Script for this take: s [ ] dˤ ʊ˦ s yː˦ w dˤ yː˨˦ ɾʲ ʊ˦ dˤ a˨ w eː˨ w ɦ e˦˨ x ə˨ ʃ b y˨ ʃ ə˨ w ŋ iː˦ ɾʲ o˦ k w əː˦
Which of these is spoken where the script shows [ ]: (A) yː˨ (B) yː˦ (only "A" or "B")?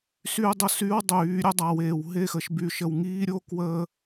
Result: B